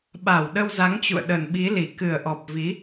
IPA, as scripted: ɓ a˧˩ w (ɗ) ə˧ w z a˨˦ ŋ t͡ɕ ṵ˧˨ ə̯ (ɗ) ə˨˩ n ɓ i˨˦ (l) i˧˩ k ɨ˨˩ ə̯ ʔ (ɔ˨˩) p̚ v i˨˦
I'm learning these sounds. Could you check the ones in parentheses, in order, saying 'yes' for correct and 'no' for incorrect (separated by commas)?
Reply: yes, yes, yes, yes